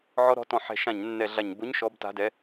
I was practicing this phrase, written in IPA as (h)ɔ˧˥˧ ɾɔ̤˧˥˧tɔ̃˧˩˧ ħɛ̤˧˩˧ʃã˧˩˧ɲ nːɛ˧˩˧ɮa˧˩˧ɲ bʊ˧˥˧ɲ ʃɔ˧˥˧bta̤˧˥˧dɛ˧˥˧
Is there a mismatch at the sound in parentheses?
yes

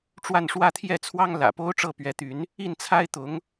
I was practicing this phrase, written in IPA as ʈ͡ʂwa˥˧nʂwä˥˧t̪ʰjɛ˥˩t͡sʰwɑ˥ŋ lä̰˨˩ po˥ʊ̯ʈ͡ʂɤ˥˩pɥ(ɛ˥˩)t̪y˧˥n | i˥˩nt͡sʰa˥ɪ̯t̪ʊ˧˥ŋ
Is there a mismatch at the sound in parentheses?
yes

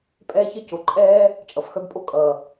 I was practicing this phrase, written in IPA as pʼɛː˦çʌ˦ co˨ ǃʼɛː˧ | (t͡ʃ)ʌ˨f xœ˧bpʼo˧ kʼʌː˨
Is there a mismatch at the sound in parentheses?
yes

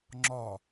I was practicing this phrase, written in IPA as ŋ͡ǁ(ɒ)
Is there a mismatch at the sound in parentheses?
no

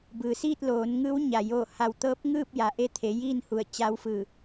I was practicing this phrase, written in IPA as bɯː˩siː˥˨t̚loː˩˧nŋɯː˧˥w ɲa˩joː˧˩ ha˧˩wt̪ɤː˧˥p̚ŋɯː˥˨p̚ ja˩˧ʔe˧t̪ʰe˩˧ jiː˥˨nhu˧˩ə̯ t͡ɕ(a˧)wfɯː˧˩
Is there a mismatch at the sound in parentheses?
no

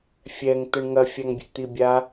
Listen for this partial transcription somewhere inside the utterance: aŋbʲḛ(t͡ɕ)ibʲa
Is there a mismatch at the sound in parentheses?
yes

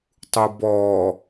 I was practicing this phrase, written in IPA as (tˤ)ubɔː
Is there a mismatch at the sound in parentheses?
no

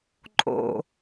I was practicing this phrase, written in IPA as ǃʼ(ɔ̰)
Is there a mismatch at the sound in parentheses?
yes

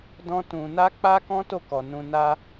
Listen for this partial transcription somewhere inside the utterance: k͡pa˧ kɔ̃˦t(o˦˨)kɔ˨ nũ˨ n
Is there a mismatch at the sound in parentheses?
no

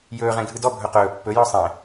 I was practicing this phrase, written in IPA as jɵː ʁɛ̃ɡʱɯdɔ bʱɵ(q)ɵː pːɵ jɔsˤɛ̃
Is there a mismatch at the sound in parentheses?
no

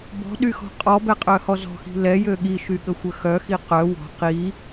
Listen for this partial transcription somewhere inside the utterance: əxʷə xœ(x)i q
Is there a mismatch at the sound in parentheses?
no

